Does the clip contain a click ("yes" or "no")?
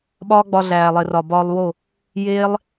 no